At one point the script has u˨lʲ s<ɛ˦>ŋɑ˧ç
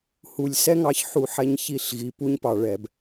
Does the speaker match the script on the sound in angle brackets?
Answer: yes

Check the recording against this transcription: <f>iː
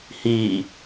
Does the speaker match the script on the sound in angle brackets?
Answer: no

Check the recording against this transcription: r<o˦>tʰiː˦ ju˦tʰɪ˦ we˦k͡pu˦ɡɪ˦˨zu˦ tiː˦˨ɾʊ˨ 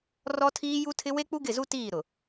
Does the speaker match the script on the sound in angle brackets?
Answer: no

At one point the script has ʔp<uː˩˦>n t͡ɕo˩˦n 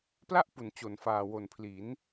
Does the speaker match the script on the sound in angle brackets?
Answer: no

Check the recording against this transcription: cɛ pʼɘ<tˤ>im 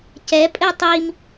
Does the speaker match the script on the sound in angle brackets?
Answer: yes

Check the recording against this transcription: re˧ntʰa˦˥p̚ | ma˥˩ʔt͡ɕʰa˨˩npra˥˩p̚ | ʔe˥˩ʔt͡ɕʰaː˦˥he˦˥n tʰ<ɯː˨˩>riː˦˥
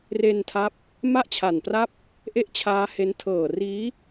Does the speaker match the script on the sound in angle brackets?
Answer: no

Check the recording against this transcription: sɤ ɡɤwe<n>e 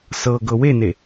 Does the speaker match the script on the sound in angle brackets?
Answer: yes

